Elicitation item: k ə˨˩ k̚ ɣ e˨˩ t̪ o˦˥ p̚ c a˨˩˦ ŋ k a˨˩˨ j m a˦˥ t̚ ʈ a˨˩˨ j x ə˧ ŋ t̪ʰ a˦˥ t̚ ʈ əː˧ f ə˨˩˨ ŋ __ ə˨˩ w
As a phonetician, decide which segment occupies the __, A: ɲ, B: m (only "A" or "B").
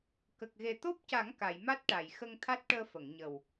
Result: A